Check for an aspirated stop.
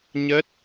absent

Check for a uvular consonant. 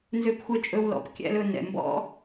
absent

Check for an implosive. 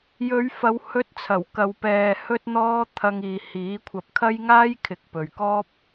absent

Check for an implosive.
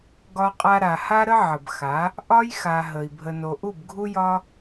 absent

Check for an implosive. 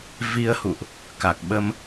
present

